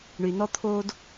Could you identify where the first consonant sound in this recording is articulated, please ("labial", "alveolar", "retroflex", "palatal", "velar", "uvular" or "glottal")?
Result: retroflex